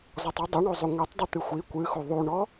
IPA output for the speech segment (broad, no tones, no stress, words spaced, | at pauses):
zɔtˤɨ dˤɨɳozˤu ŋʷitˤ dˤɨt̪ɨxʷi kʷɨxu ðˤuɳɔ